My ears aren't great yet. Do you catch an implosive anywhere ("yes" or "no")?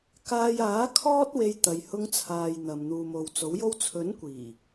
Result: no